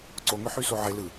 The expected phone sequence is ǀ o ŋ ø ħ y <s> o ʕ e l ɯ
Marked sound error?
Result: no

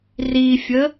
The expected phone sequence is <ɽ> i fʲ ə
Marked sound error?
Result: yes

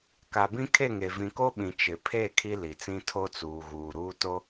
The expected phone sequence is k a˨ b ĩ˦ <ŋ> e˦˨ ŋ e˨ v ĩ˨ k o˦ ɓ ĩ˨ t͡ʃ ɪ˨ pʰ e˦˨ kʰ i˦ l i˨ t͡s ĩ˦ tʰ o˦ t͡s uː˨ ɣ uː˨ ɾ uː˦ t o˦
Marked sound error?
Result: yes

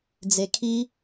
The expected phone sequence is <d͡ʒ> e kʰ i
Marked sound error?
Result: yes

